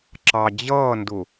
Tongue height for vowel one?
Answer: low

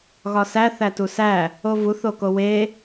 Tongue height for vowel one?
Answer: low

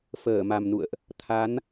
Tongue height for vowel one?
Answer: mid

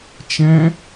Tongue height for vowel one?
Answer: mid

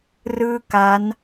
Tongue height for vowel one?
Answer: high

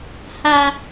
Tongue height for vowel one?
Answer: low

